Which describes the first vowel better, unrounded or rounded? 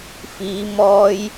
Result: unrounded